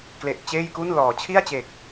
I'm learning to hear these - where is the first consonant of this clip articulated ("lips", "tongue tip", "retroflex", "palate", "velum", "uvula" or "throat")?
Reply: velum